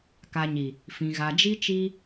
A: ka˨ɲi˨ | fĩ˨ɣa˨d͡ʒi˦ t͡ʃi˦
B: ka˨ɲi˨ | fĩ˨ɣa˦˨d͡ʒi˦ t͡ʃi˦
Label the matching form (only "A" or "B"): A